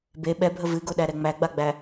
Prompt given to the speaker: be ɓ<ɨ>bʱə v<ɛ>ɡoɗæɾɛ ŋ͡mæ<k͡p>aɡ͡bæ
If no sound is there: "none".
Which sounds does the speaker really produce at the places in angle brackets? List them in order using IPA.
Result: ɛ, ɨ, ɡ͡b

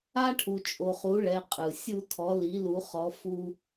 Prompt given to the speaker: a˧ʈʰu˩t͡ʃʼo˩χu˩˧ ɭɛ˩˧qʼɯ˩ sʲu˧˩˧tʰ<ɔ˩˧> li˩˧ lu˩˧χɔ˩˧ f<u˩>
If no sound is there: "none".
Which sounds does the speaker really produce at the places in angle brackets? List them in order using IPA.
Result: ɔ˩˧, u˧

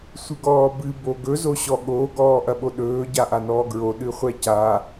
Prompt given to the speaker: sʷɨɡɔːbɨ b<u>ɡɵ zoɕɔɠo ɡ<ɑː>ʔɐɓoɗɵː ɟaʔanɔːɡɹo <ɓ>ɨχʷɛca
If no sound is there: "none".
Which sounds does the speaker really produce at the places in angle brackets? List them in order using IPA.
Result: o, ɔː, ɗ

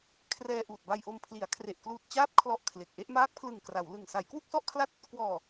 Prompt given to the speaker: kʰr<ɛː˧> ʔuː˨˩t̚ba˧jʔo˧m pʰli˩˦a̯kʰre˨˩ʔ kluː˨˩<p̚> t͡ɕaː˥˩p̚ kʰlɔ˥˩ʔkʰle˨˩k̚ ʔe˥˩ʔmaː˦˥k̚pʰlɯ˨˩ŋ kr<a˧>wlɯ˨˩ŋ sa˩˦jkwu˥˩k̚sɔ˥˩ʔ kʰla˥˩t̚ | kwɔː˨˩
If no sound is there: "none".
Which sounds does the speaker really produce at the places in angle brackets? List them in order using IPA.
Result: ɛː˧, t̚, a˩˦

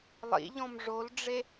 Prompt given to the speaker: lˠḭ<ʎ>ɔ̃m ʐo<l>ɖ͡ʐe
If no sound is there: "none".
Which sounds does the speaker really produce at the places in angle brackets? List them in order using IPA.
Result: ʎ, l

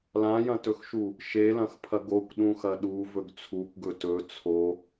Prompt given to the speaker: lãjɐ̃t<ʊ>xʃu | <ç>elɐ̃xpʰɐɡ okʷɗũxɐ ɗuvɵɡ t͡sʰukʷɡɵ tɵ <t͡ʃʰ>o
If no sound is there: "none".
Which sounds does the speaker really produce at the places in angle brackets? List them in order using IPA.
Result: ɵ, ʃ, t͡sʰ

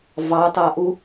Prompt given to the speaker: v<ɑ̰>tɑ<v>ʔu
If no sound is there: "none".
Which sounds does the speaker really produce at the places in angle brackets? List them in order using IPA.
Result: ɑ, none

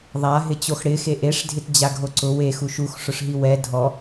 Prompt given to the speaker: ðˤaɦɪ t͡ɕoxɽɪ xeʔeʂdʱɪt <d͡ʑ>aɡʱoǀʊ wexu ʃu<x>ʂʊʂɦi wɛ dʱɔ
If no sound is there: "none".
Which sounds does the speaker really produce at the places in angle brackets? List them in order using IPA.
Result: d͡ʑ, x

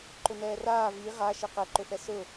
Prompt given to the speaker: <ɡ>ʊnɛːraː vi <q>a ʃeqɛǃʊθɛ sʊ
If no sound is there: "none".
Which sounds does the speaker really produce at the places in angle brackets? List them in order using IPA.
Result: ǃ, ʁ

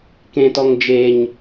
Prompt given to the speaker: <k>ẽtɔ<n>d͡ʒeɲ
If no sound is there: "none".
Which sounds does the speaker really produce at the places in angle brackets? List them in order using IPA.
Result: k, ŋ

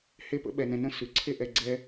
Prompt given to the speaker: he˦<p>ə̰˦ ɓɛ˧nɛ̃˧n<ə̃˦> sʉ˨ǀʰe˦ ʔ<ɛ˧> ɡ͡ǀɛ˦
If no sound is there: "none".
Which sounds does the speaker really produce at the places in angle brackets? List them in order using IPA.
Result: p, ə̃˦, ɛ˧

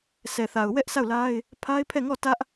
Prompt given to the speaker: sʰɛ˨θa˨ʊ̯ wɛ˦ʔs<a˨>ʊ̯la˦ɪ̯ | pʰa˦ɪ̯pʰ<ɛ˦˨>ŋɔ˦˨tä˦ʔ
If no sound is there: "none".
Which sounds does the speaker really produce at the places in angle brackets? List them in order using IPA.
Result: a˦˨, ɛ˦˨

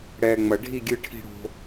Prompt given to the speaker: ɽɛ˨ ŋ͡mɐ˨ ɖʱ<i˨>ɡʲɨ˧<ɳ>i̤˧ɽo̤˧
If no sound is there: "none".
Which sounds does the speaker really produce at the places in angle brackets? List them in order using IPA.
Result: i˦˨, ʈʰ

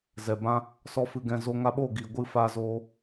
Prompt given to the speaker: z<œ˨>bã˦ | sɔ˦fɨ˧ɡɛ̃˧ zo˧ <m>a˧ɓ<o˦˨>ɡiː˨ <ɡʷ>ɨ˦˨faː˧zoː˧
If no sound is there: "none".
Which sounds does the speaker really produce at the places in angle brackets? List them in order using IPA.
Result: ɛ˨, ŋ, o˦˨, ɡʷ

